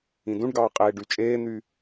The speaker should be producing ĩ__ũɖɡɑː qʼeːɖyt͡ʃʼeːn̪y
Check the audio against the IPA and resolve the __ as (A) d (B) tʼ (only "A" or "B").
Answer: A